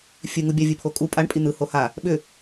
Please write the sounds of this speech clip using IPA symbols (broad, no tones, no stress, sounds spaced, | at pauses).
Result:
fʲ ɨ ŋ u bʲ a vʲ ɨ pʰ o kʼ u pʼ a ɳ pʼ i n̪ ɯ h o h a | ɓ ʏ